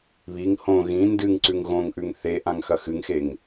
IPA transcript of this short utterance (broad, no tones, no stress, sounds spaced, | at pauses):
β i ŋ h õ ɣ ĩ n d ɨ ŋ ǀ ʉ ŋ ɣ õ ŋ ʔ ʉ ŋ θ e ʔ ã ŋ x ɐ x ɨ ŋ x e ŋ